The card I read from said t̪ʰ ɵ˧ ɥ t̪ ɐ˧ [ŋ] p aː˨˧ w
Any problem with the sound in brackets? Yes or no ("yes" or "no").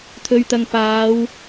no